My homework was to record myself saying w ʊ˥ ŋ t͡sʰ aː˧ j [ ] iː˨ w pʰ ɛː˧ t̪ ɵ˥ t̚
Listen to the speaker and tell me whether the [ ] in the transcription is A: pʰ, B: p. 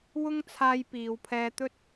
B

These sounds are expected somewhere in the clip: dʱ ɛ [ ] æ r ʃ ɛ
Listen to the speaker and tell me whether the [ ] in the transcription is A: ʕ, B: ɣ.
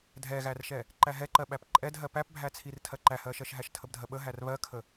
B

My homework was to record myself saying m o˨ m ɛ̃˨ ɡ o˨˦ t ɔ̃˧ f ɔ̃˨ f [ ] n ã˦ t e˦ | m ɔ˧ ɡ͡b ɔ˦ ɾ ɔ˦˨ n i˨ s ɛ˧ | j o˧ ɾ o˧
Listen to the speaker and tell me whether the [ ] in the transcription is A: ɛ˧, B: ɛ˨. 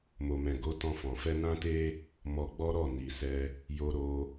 A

